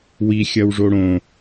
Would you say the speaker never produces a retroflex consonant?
no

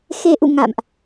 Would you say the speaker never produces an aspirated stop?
yes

